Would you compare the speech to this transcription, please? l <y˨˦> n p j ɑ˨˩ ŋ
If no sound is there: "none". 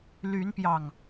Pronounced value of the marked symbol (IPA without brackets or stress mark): y˨˦